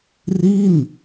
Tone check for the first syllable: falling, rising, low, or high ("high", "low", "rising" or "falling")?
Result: falling